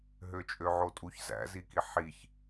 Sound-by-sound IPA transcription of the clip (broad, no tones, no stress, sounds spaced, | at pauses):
ɦ ø t͡ʃʼ ø ʕ o tʼ u ç z æ̰ z i k i ħ i ç